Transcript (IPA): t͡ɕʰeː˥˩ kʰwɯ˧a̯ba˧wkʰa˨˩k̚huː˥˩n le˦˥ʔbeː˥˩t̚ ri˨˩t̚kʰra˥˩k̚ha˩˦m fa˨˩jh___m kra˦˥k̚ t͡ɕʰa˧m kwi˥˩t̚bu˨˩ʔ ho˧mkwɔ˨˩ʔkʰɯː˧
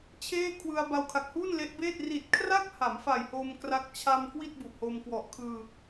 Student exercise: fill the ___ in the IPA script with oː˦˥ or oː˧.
oː˧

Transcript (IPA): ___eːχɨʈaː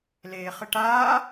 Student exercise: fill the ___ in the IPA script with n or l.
l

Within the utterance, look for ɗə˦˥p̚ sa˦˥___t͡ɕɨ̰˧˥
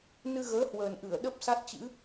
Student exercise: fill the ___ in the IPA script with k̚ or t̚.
t̚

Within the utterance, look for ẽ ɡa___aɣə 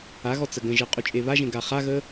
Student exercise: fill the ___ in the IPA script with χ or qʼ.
χ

